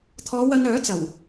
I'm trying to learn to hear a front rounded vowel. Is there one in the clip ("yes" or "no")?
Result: yes